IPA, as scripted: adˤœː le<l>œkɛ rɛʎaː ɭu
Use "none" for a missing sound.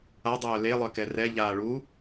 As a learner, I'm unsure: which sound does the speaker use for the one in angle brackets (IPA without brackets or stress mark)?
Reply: lˠ